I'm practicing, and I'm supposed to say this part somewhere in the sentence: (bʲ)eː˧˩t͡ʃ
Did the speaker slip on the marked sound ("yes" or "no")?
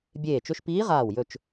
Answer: no